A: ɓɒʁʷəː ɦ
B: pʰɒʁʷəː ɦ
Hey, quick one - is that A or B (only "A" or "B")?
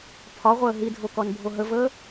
B